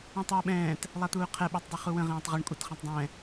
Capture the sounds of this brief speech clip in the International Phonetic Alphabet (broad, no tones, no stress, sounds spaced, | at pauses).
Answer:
ũ tˤ uː ɓ ɛ̃ː t | lˠ a t̪ uː qʰ ɛ ɓ uː tˤ dˤ ø χ u w ə̃ ʁ ẽː tˤ ʁ ɛ ɳ kʷʼ a t χ ẽ tˤ dˤ ɛ̃